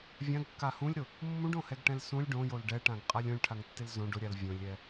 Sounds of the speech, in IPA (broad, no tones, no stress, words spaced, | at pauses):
vʲãɡkːa hũlʲɾʊ | mːũɖõhɛɡʈɛ̃l sũlʲ ɖõjol ɖɛʈãɡqʼalʲ õlʲʈʰaŋtːɪl zõ ɖʊɾʲal vʲõlʲɛ